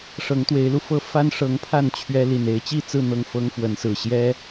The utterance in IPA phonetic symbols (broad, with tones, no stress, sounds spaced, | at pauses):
ʂ ɤ˨˦ ŋ t̪ w e˨˦ ɪ̯ l u˧ f ɤ˥˨ f a˦ n ʂ ɤ˨˦ ŋ pʰ a˥˨ n t͡ɕʰ ɥ ɛ˦ l i˨˩ n e˨˦ ɪ̯ t͡ɕ i˥˨ t͡s ɹ̩˥˨ n̪ ɤ˥˨ ŋ f ɤ˦ ŋ f w ə˨˦ n s ɹ̩˨˩ ɕ j ɛ˦